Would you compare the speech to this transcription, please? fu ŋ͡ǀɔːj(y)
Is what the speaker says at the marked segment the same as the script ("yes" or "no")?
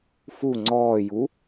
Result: no